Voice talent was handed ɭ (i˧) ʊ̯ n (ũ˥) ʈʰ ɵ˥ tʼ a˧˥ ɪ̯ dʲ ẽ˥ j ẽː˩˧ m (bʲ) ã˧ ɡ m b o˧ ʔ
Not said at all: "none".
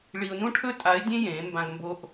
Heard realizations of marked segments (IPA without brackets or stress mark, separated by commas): i˧, ũ˥, b